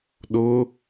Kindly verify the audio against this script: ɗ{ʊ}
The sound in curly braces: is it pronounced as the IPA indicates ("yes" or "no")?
yes